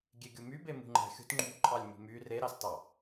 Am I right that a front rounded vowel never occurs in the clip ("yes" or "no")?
no